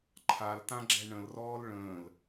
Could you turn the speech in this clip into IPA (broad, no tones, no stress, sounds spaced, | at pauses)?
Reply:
ǃʰ a l t ã ɡ͡ǁ ɛ ɳ ə̃ l r ɔː l ɭ ə̃ː l